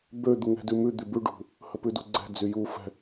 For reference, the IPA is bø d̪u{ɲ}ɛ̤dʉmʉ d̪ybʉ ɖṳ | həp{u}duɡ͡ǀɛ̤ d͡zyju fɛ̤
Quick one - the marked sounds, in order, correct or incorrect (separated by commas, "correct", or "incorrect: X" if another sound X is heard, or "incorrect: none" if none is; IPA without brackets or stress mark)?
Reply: incorrect: ŋ, incorrect: ʉ